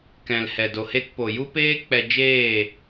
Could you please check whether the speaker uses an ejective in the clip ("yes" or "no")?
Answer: no